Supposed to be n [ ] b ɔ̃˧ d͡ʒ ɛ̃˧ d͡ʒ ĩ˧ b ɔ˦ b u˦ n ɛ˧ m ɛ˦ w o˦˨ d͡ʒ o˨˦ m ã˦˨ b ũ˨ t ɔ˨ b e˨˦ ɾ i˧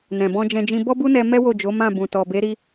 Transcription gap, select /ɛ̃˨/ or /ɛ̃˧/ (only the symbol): ɛ̃˨